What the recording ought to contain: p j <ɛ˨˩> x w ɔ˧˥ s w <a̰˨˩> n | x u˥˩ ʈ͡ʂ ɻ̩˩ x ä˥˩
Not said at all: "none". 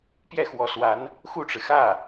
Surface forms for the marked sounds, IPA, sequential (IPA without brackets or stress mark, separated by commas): ɛ˥˩, a˧˥